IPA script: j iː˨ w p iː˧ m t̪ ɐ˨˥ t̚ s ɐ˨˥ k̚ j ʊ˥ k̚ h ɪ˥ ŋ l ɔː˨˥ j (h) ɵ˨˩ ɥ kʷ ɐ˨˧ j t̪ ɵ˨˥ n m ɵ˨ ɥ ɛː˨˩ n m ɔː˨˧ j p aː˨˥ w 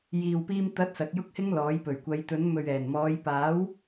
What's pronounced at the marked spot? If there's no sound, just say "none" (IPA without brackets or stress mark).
p